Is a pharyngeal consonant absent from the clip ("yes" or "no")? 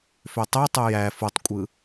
yes